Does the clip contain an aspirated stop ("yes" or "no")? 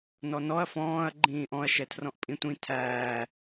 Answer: yes